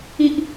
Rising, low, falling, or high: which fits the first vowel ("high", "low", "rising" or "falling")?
low